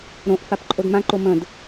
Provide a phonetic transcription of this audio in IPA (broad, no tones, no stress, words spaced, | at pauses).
ɾõʔ fapǃʼodmãǃo mə̃d